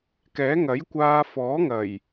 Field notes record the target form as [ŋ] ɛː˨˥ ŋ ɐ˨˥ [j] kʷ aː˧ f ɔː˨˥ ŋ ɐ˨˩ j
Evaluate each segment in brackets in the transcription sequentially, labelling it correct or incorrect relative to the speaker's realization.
incorrect: k, correct

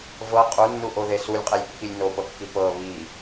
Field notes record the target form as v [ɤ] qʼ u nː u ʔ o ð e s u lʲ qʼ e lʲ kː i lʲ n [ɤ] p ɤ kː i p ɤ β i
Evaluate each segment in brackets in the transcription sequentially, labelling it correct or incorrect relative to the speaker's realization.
correct, incorrect: o

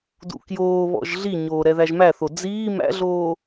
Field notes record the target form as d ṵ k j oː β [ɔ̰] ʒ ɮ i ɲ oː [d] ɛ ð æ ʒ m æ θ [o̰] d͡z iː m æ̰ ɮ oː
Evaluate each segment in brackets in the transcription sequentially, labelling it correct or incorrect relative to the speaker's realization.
correct, incorrect: ɾ, incorrect: o

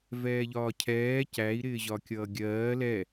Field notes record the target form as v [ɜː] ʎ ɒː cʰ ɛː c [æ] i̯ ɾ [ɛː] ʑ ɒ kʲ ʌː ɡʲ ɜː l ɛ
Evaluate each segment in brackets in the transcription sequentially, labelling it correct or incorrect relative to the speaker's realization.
incorrect: ɛː, correct, incorrect: ɪː

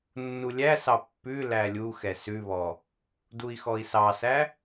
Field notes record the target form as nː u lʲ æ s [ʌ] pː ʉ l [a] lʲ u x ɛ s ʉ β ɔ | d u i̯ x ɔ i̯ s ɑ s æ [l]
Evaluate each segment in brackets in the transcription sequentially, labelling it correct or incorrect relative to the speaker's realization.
incorrect: ɑ, incorrect: æ, incorrect: none

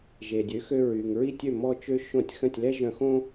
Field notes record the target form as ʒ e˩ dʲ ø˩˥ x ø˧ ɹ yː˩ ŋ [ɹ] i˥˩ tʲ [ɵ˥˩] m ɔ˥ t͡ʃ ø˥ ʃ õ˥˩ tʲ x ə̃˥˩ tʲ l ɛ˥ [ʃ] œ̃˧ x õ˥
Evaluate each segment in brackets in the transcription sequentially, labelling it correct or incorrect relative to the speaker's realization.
correct, incorrect: ø˥˩, incorrect: ʒ

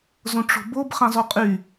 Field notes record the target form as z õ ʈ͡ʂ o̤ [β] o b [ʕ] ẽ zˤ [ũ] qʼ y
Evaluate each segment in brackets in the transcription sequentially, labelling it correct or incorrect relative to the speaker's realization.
incorrect: b, incorrect: χ, incorrect: u

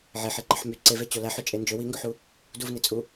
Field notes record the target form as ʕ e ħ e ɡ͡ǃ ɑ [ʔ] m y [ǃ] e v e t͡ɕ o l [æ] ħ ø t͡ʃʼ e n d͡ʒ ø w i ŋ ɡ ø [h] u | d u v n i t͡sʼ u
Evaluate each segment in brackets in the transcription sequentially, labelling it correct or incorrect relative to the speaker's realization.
incorrect: ħ, incorrect: ǀ, correct, incorrect: ħ

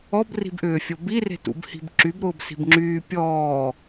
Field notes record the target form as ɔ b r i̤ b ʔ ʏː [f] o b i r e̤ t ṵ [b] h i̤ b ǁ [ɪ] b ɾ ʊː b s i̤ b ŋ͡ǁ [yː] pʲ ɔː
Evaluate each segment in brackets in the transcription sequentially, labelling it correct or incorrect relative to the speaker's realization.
incorrect: fʲ, correct, incorrect: y, correct

